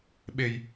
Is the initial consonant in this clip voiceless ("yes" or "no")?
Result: no